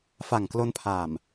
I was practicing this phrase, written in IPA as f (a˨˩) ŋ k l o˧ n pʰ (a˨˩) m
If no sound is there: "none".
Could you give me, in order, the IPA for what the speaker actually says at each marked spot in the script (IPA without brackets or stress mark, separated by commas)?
a˨˩, a˨˩